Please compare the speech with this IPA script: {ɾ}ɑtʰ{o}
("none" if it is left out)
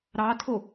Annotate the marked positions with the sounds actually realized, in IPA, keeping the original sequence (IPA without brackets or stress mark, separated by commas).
ɾ, o